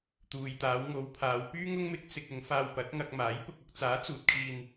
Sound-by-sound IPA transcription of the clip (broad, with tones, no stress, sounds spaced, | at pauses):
t̪ uː˨ j t̪ aː˨˧ w ŋ o˨˧ w pʰ aː˨˧ w p yː˥ ŋ ʊ˥ ŋ m ɪ˧ k̚ t͡s ɪ˧ k̚ ʊ˨˧ ŋ f aː˧ w p ɐ˨˥ t̚ ŋ ɐ˧ k̚ m aː˨˥ j p ʊ˧ k̚ ɐ˧ k̚ t͡s aː˨˥ t͡s uː˨ t̚ kʰ iː˧ n